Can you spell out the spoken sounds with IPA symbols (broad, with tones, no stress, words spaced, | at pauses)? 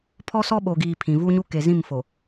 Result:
pʰɔ˦sɔ˦ɓo˨ɡiː˨ pʰĩ˨vu˦ɲu˦ ke˨zĩ˦˨m fo˨